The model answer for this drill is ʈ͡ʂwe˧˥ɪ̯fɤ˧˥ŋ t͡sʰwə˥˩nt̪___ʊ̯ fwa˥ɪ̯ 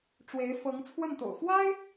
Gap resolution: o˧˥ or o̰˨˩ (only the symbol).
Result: o̰˨˩